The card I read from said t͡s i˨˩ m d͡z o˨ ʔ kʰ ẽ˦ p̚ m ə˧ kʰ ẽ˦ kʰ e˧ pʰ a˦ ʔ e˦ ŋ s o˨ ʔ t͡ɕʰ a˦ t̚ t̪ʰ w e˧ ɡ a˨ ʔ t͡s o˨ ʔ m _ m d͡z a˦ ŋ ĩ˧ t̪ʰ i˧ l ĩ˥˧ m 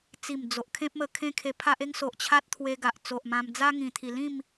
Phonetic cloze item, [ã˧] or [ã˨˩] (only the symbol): ã˧